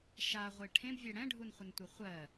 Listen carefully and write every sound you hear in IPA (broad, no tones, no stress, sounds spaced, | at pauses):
ʃ a ʁʷ e ʈʰ ẽ b vʲ ɛ ɽ ɛ̃ ɖʱ u n χʷ ə n tʷ e χʷ ɜ